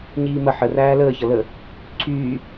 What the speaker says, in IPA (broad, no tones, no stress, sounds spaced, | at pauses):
ɲ iː m ə ħ ə r æː l əː ç ʌ l ə | ǀʰ yː